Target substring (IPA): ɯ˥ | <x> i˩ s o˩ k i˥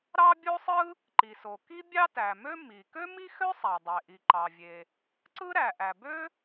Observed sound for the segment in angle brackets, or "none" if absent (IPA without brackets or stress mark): ǃ